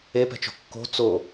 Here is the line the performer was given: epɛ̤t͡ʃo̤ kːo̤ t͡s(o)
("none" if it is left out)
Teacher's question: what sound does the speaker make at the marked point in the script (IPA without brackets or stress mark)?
o